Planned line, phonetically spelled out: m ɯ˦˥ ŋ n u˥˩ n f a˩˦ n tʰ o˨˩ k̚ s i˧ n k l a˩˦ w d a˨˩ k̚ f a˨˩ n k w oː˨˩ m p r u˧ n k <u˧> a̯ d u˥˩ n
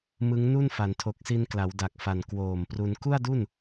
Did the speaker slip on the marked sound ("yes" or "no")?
yes